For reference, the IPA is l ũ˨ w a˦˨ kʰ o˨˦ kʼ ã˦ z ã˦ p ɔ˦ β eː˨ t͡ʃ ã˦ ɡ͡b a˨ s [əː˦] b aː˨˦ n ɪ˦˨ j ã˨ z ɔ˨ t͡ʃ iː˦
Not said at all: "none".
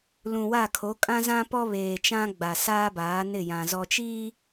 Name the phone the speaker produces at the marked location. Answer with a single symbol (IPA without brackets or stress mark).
aː˦